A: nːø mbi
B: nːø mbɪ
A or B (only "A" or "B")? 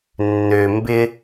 B